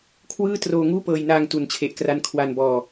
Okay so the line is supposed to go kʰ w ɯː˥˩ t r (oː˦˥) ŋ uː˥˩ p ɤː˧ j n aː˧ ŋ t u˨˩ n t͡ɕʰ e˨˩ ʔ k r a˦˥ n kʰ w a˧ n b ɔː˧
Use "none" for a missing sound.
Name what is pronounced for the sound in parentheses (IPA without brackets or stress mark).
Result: oː˧